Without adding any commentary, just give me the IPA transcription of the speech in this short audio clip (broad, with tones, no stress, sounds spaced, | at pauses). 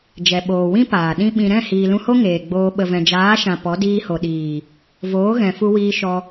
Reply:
d͡ʒ ɛ˨ ɓ oː˨ w ĩ˦ p aː˨ ɗ ĩ˦ ɓ ĩ˧ ɾ ɛ̃˦˨ h iː˨ l ũ˧ h o˦ ŋ eː˨ ɡ͡b oː˧ ɓ ə˨ v ɛ̃˨ d͡ʒ aː˨˦ ʃ ã˨ p ɔ˨˦ d iː˧ h o˨ ɗ iː˨ | v oː˨˦ ɣ ɛ̃˨ f u˧ w iː˧ ʃ ɔ˧